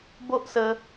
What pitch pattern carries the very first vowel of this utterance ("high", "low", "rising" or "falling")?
high